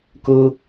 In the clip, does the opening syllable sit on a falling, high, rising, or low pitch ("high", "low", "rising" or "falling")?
high